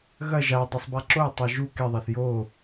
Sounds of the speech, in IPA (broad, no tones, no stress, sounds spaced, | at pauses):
ɣ ɐ ʒ a dˤ u sˤ b a ǁ o tˤ a ʒ u k e ðˤ a θ j o